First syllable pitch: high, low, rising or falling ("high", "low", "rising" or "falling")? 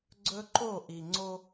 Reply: high